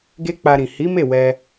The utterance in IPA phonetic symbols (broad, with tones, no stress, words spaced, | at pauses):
ɡe˦k͡pa˧ɾĩ˨ hi˨˦me˦˨ wɛ˧